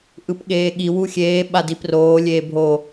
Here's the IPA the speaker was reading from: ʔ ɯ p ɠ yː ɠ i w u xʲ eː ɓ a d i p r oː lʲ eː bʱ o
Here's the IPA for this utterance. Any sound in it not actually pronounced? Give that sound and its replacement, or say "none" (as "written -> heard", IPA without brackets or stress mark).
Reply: yː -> eː